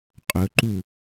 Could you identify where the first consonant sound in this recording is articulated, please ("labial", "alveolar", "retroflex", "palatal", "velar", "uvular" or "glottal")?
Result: uvular